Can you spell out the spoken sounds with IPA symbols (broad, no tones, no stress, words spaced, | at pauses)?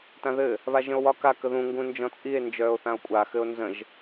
tãðɘ | βaʒə̃o̯wɒ ka kəðũ ŋɡũnd͡ʒɔ̃t͡sʼie̯ nd͡ʒœːo̯θão̯kʷʼa xɘo̯nzə̃ʒ